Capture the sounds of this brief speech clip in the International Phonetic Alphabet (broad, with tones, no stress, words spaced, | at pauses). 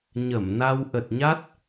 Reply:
ɲə˧˩mna˧w ʔə˨˩t̚ɲa˦˥t̚